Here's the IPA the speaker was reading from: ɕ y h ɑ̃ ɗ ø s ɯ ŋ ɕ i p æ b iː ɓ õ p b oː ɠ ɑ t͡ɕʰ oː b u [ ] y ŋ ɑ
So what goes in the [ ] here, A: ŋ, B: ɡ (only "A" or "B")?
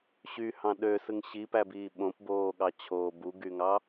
B